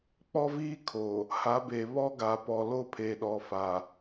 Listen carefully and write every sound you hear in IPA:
k͡pɔ˦viː˦ kʰo˨ | ha˨˦be˨ βɔ˦ɡa˨pɔ˨ lo˦pʰe˨ɗɔ˨ fa˨

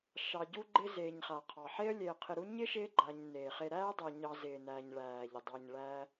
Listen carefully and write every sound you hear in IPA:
ʃɑ˨ɟu˦ɡ͡ǃɪː˦ zeː˨ɲχa˩qʰɑ˩ ħe˦ə̯lʲe˨ə̯qʰɪ˨ɾu˦ ɲɪ˥ʃɪː˦ɡ͡ǃa˨ɲ neː˩ χe˨ɾæː˦ dˤæ˨ɲɑ˨ zɪː˩ næː˨ɲɭæː˩ʎə˩ dˤɑ˩ɲ ɭæ˨

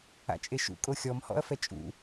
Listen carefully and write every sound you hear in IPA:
a̰t͡ʃʼeʃṵ kʼoxʲɔm hɔ̰ɐ̯fɛt͡ʃʼṵ

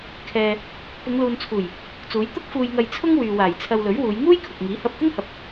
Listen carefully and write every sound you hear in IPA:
kʰɛː˨ | pʊ˨˧ŋluː˨nt͡sʰuː˨˩j | t͡suː˨˥j t̪ʊ˥k̚fuː˧jŋɐ˧j t͡sʰʊ˥ŋwyː˨waː˨˩jt͡sʰɐ˧w lɵ˨˥ɥwuː˨˧jŋuː˥jkʰʊ˨k̚ ŋiː˨˥hɐ˧p̚t̪ɪ˥ŋhɐ˨˥p̚

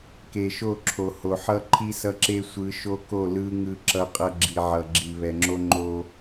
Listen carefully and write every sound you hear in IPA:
ke˨ʃo˦˨ǁʰo˨ho˨ ħʌ˦ǃʰi˦ sʌ˦ǁe˦sʷɯ˨˦ ʃo˦ko˦˨ lɯ˦ ŋɯ˦ǁʌ˦qʼʌ˦ ɡ͡ǁi˨ʕʌ˨ ɡ͡ǁi˨βɛ˨ŋ͡ǁo˦ ŋ͡ǃo˦

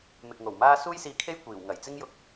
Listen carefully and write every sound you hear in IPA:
mɪ˨k̚ŋo˨˩w maː˥ suː˥jsiː˧kʰe˥j kʷiː˨˩w ŋɐ˨˩jt͡sɪ˥ŋjʊ˧k̚

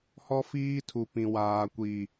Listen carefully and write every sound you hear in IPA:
hɔ˦fiː˦tʰu˨ pĩ˨waː˨kʷi˨

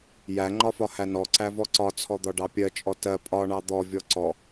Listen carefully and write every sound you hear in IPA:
jæŋ͡ǃɒfɒ hænɔǀævɔ ǀɒt͡sʰɔ d̪ɒɖɑpʲɜt͡ʃʼɔ tɜ pʼɒɳɑ d̪ɔ vʲɔǀɔ

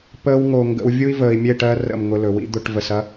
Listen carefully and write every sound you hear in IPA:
pəː˧wŋo˨ ŋɡə̰˧w vʲu˦i̯vəː˨i̯mʲe˦˨ʈɜ˧ rə̰˦˨mŋʊ˧lɵ˨wḭ˦ d̪ʊ˦˨ʈvə˨sɐ˦

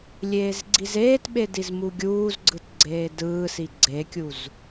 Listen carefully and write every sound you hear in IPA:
lʲeːzɡ͡ǀizeːtɓe dizmuɡʲuːzɡ͡ǀɯt ɡ͡ǀeːdɯːsi ɡ͡ǀekʲuz

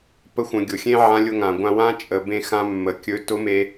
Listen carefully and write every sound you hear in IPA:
pə˧˥xʷə̃˩˧ɡʲʊ˩xʲẽ˥ ʕã˧˥lʲʊ˧ŋã˩ ɡʷã˧wã˥ t͡ʃʼə˩˧ bẽ˧xã˧mːə˩˧ kʲɵ˧tʊ˧˥me˧

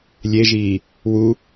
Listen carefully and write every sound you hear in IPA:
lʲeʒiː | wu

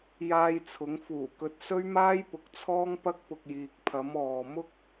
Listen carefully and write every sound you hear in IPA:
jaː˧jt͡sʰʊ˨˧ŋ fuː˨˩kɵ˨t̚ sɵ˥ɥmaː˥jpʊ˨˥k̚ t͡sʰɔː˥ŋpɐ˥k̚pʊ˧k̚jiː˨k̚ pʰɐ˨˧mɔː˨ mʊ˥k̚

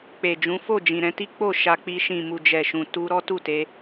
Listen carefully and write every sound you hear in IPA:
k͡pe˨d͡ʒũ˨˦ fo˦˨d͡ʒĩ˨ɾɛ̃˧ti˦ k͡po˦˨ʃa˧k͡pi˧ ʃĩ˨mu˨ d͡ʒɛ˨ʃũ˨tu˧ɾɔ˦ tu˦˨te˧

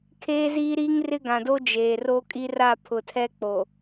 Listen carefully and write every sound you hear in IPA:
kʰeː˦ziː˦ ɾiː˦ŋrɪ˦ɡã˨do˦ d͡ʒeː˨ ro˦kʼi˦ ra˦˨pʰʊ˨tʰɛ˦k͡po˨

